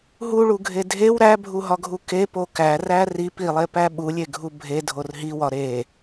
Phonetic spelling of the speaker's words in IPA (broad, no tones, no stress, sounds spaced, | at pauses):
ɦ u ɭ u ɡʱ e dʱ e w ɾ æ bʱ u ɦ ɒ ɡʱ u k e p o k æ r æ r i p i lˠ e p æ ɓ u lʲ e ɡʱ u bʱ e dʱ o r ɦ i w ɒ ɾ e